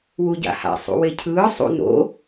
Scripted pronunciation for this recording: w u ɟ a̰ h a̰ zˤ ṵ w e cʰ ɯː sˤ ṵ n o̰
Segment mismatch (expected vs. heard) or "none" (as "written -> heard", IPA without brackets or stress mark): zˤ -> sˤ